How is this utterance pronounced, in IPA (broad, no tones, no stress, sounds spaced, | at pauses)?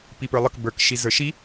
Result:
p i p ə˞ lˠ ə k b ə˞ k ʃ i z ə˞ ʃ i